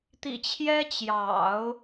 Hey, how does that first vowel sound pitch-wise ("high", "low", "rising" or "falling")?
low